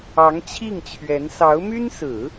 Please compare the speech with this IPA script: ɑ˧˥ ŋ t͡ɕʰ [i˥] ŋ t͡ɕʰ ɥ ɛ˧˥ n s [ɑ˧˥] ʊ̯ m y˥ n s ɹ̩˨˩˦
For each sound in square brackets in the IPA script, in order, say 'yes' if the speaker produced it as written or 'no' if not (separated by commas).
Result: no, yes